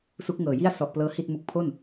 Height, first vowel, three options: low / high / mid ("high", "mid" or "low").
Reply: high